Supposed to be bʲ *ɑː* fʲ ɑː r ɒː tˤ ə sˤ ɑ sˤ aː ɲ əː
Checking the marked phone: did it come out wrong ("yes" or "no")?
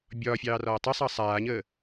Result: yes